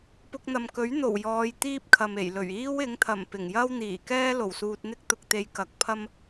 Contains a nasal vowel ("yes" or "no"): no